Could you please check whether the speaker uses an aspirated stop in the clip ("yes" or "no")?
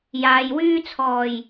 yes